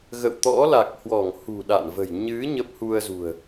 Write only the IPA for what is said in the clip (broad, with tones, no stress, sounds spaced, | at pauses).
ɣ ə̰˧˨ w t̪ ɔ̰˧˥ l a˨˩ k̚ h w ɔ˧˩ ŋ h ṳ˨˩ ɗ a̰˧˨ n v ə̤˨˩ j ɲ ɨ˨˦ ɲ ə˦˥ p̚ h u˧ ə̯ z ṳ˨˩ ə̯